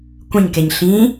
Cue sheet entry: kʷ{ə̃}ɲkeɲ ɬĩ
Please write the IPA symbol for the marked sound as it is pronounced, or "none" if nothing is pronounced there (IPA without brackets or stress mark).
ə̃